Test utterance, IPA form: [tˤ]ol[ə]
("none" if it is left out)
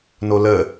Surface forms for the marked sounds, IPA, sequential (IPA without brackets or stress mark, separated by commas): n, ə